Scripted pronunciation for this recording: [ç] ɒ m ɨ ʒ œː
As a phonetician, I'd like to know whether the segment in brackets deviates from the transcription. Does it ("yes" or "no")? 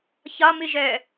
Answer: no